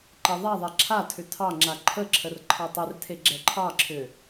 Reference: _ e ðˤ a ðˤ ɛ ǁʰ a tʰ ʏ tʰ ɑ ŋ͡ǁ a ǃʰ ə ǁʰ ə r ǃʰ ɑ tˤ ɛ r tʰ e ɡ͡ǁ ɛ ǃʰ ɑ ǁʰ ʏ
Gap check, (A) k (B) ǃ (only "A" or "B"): B